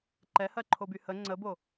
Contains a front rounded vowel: yes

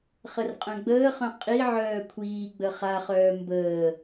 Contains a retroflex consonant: no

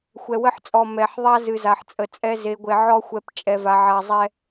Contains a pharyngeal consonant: yes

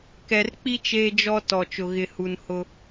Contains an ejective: no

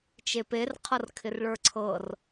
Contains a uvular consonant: yes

